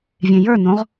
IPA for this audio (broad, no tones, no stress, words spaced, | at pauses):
vʲẽjə˞nõʁ